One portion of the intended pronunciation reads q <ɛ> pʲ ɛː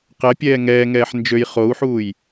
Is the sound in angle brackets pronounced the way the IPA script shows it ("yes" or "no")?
yes